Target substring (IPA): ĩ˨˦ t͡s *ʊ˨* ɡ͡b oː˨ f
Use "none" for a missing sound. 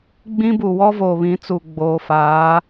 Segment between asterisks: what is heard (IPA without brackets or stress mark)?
u˨